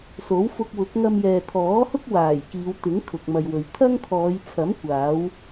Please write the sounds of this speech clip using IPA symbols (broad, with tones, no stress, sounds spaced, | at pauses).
s o˨˥ w f ʊ˧ k̚ w ʊ˨˥ k̚ ŋ ɐ˧ m j ɛː˨ t̪ʰ ɔː˨˥ h ʊ˥ k̚ w aː˨˩ j k iː˨˧ w t̪ ɪ˨˥ ŋ kʰ ʊ˨ k̚ m ɐ˨ j w ɵ˨ ɥ t̪ʰ ɐ˥ ŋ t̪ʰ ɔː˨˧ j t͡sʰ ɐ˨˥ m kʷ aː˨˥ w